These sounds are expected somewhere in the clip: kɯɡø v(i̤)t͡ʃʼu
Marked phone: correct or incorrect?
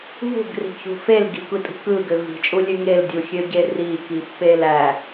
correct